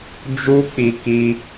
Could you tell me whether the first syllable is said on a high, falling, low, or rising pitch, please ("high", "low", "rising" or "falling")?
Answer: high